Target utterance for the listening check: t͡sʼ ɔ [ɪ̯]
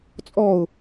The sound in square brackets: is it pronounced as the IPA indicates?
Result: no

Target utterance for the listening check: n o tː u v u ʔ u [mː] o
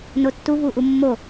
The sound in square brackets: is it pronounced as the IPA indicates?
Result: yes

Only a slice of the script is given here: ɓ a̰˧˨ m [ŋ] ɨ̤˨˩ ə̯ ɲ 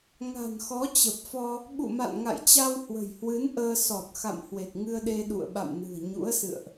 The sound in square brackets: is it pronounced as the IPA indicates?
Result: no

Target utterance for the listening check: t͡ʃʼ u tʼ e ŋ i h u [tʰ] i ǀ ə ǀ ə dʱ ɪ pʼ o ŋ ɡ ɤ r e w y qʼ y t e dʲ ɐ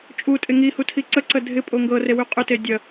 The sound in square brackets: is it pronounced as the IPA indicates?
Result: yes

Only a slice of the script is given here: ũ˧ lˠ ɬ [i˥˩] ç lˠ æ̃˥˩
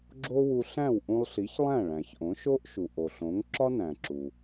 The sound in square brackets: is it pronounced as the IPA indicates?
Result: no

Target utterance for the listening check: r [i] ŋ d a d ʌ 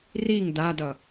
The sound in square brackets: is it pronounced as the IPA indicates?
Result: yes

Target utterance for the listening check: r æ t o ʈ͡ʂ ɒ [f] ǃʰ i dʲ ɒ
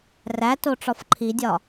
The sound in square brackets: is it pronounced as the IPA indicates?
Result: yes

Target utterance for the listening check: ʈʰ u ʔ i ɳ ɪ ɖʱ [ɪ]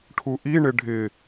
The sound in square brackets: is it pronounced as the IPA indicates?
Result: yes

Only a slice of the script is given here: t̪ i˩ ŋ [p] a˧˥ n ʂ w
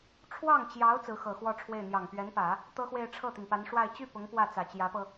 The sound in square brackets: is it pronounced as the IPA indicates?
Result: yes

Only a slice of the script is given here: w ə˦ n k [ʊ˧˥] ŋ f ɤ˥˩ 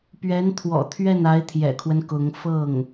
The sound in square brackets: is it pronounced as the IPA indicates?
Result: yes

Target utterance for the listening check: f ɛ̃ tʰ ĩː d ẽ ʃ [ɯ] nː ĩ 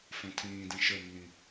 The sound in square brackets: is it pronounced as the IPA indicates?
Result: no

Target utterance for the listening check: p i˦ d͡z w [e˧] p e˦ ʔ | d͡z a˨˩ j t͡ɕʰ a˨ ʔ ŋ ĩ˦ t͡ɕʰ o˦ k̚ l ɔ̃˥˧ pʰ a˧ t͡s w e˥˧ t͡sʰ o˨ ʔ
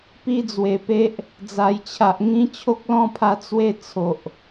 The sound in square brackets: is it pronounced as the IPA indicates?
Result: no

